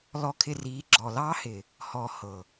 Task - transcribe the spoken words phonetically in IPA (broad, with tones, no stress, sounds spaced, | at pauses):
l ɔ˧ kʰ ɪ˧ r iː˨˦ ɡ͡ǁ ɔː˨ l ɑː˧ h ɪ˨ | h ɔ˨ h ɤ˨